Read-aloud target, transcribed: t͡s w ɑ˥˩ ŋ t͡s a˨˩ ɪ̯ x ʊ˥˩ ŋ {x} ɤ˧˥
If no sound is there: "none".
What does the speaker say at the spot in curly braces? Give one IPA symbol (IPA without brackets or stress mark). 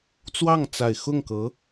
k